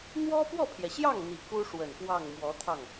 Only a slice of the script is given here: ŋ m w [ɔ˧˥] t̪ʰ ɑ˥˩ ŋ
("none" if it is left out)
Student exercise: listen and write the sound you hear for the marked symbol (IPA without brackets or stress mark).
ɔ˧˥